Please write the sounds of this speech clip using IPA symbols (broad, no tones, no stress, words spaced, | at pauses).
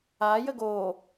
ajə ɡo